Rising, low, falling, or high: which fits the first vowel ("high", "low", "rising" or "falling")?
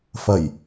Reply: low